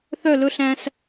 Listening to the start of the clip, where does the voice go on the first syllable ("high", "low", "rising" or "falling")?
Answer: falling